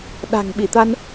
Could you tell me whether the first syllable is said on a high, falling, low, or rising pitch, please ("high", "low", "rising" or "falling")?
low